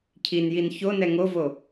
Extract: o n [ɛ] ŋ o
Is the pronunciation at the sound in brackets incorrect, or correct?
correct